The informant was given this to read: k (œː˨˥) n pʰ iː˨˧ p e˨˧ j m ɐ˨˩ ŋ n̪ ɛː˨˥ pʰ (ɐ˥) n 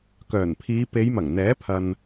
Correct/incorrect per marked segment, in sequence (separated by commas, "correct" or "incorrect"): incorrect, incorrect